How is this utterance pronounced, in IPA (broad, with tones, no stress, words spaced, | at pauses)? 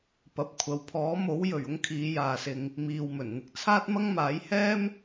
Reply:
pɐ˨p̚ kʷʰɐ˨wpʰɔː˨˥mo˨˥wjɵ˨˩ɥ ʊ˥ŋkʰiː˨˧jaː˨sɪ˨ŋ | miː˨wmɵ˨˩nn̪ɪ˧k̚ t͡sʰaː˥t̚mɐ˥ŋ maː˨˥jhɛː˥m